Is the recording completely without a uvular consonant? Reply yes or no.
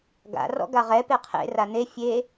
no